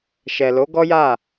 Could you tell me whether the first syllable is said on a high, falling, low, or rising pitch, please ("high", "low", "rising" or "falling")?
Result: low